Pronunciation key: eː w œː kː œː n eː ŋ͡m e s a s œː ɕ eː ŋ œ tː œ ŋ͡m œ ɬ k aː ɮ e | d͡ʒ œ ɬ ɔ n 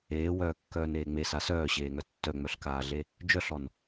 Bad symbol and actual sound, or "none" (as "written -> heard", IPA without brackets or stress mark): none